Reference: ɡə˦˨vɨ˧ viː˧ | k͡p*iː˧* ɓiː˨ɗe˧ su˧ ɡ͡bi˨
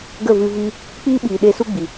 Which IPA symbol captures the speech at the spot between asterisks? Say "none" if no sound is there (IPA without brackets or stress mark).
iː˧